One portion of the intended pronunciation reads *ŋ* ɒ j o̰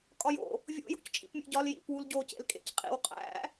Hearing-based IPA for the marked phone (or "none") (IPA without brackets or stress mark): kʼ